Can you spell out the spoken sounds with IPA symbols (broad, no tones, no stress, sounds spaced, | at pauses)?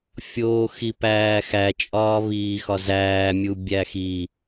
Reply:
fʲ oː x i p æː x æ t͡ʃʼ ɒː β iː x ɒ z æː mʲ u bʲ æ x i